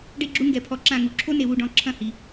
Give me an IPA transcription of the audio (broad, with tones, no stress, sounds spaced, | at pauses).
ɖ e˧ ɡ͡ǁ u˦ ŋ ɡ ɛ˧ pʰ ɔ˧ ǁ ã˧ ŋ u˨ ǁʰ o˦ n e˧ w u˧ ɖ ɔ̃˧ ǁʰ ɐ̃˦˨ h i˧